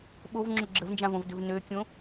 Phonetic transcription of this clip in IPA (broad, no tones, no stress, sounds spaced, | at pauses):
ɓ o v ŋ͡ǁ o ɡ͡ǁ ə v n d͡ʒ ã v õ v d ø v n ø kʲ õ